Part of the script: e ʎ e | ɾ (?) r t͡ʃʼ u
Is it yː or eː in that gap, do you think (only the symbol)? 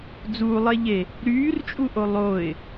yː